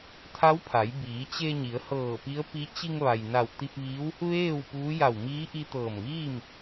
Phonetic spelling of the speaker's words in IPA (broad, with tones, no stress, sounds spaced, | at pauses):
t̪ʰ a˧˥ w pʰ a˩˧ j b iː˩˧ t͡ɕ e˧ ɲ i˩˧ ə̯ h ɤː˧˩ p i˧˥ ə̯ p i˧˥ t͡ɕ i˧ ŋ ʋ a˩ j n a˧˩ w t̪ i˧ p̚ ʋ iː˧˥ w | ʋ eː˥˨ w p uː˧˥ j a˧˩ w m iː˧˥ ʔ i˧ t̪ ɤː˧˩ m ʋ iː˥˨ m